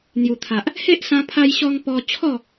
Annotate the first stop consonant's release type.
aspirated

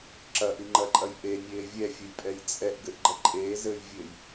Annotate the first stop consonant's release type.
click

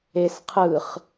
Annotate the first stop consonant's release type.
aspirated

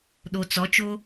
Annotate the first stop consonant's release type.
implosive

